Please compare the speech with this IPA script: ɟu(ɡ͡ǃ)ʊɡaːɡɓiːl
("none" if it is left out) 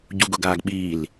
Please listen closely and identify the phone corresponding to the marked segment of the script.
ɡ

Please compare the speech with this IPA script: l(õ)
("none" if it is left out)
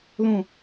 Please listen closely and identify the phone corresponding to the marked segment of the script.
õ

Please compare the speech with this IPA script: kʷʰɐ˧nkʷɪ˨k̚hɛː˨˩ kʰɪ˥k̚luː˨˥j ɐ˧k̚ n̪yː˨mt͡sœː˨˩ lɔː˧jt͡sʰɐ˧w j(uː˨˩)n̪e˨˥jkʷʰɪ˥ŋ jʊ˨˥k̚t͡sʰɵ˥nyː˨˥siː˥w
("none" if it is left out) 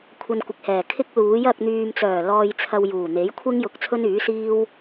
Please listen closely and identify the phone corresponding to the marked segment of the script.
uː˨˩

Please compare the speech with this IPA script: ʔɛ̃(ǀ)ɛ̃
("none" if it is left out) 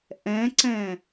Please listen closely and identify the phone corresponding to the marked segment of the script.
ǀ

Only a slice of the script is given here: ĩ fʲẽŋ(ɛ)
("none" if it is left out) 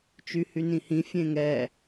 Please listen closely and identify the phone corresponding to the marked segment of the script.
ɛ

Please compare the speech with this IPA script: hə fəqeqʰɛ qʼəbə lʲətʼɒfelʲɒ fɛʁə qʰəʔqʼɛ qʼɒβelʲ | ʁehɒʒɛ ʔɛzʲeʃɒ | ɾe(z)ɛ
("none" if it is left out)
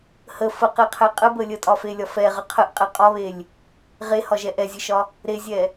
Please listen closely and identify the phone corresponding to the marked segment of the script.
zʲ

